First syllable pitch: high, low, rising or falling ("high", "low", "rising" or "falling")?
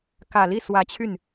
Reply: low